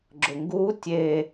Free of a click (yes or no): no